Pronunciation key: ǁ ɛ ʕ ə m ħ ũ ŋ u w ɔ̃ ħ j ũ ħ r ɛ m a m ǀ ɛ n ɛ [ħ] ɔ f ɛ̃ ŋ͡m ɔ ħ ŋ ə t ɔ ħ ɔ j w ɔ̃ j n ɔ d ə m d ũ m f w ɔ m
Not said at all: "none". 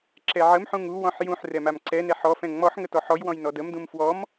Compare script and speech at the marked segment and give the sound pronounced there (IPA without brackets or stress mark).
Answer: ħ